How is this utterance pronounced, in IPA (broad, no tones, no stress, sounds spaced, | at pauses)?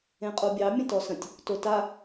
ẽ qʼ o bʲ ɑ mʲ ə̃ t ɔ s ə̃ tʲ | t o t a